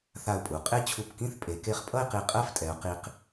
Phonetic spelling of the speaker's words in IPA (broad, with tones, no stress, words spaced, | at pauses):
θa˧˩ʊ̯pʼu˩˧qʼe˥ t͡ɕʰu˧˩pkĩ˥˧θpʼe˩˧ ke˧χpʼʌ˥˧ɪ̯ qi˧˩qʼɜ˥˧ftʼɛ˩˧ʊ̯ qi˧q